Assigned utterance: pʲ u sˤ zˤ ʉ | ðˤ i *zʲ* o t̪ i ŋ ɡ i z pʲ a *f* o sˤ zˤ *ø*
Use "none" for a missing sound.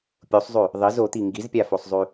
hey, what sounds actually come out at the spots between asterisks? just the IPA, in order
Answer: z, f, ʉ

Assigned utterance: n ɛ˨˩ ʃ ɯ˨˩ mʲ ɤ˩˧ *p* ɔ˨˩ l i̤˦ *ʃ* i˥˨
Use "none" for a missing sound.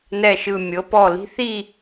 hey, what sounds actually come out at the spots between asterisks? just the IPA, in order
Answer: p, θ

